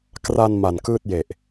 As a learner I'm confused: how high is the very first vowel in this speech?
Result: low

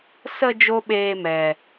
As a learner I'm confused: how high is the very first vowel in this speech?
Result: mid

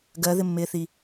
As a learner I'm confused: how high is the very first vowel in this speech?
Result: mid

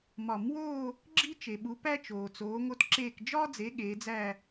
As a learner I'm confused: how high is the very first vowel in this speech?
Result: low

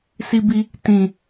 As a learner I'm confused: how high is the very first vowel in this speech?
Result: high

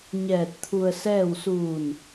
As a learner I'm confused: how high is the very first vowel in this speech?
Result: mid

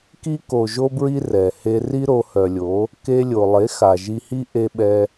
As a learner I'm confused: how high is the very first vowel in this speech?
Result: high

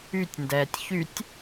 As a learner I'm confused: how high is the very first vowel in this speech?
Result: high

